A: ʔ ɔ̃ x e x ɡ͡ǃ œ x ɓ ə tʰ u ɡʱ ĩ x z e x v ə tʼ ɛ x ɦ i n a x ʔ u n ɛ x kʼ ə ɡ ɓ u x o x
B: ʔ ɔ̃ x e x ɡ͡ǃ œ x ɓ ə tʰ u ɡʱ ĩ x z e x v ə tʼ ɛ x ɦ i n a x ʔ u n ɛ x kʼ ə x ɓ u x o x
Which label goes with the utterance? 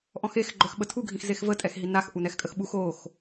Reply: B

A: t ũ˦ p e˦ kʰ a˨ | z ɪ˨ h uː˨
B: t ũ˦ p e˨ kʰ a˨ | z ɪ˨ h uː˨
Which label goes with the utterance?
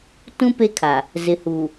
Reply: A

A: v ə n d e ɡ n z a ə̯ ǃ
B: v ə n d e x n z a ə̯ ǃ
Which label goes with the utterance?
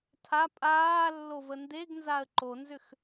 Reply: A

